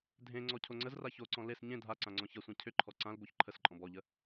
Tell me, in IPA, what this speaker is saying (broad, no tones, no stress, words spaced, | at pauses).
dʱẽ ŋ͡ǀɔcʰoŋ͡ǀəzra çoǀɔ̃ les ɲẽ dʱa ǀãŋ͡ǀɔ̃çɐsʷã cʰʏǃʰɔ ǀãlboç ǃʰəsǃʼɔ̃b ɔʎə